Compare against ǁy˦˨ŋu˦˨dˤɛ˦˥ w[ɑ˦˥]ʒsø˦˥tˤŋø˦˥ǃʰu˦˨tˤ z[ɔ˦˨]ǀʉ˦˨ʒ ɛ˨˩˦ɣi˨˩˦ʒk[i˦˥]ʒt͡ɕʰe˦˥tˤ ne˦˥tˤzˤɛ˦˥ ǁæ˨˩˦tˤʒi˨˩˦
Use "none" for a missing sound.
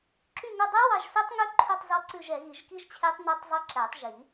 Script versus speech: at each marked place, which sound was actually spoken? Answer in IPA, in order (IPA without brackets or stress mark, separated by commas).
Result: ɑ˦˨, ɔ˦˨, i˦˥